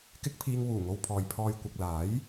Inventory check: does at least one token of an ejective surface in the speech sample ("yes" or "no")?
no